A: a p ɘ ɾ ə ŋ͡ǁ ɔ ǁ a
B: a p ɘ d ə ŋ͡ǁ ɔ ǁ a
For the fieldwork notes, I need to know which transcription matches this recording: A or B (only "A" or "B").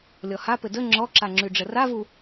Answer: B